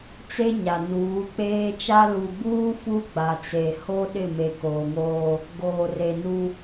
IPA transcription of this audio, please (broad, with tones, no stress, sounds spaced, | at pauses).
t͡s e˦ ɲ a˨ n uː˨˦ k͡p eː˦ t͡ʃ a˦ l u˨ b uː˦ f u˦ ɡ͡b a˨ t͡s e˨ h o˦ ɗ ɪ˦˨ m e˨ k oː˨ ŋ oː˦ | ɡ oː˨ r e˨ n u˦